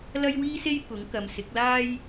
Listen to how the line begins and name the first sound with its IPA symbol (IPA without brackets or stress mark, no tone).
l